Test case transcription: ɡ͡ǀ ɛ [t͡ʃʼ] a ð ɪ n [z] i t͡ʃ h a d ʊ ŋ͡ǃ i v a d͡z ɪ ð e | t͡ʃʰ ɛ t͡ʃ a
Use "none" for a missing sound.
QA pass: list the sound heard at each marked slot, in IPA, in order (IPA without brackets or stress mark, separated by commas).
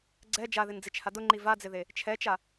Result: d͡ʒ, d͡z